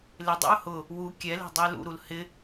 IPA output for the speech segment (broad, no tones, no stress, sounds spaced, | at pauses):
l ɪ dˤ ḛ ʊ̯ h ʊ | w u kʲ ɛ l e̤ dˤ ʊ ɪ̯ l ṵ ɾ u l h ɪ